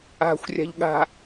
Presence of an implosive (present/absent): present